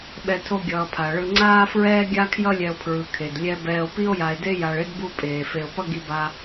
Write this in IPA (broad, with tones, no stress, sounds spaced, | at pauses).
ɓ ɛ˦ tʰ o˥ ɡʲ ʌː˨ pʰ a˩ ɭ ɯ˨ ŋ͡ǀ aː˥ f ɹ ɛː˥ ɡʲ a˥ kʰ j ʌ˥ lʲ ɛ˨ o̯ pʰ ɹ ɯ˩ kʰ e˩ d lʲ ɛ˦ b ɛː˨ o̯ p i˥ o̯ j a˨ e̯ d e˥ j a˨ ɭ e˥ d b u˦ pʼ eː˩ f e˨ o̯ p ʌ˥ ɡ i˦ b a˦